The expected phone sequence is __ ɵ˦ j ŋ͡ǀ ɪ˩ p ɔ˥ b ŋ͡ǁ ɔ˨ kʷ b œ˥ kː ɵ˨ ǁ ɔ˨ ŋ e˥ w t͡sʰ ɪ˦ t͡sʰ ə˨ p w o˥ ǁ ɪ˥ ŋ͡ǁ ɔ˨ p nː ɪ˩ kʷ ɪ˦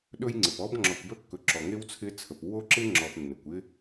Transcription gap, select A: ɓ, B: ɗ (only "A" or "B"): B